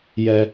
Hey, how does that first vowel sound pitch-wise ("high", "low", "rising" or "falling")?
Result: high